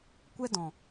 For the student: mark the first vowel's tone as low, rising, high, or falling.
high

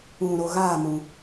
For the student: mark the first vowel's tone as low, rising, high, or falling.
low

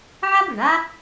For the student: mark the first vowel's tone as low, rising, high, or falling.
high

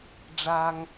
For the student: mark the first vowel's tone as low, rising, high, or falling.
low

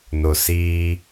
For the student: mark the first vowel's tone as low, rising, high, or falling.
low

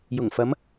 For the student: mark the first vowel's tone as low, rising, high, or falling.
low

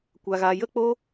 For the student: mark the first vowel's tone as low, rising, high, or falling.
high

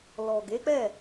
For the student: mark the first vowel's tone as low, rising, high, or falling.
low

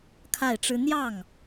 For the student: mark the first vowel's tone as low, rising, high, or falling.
falling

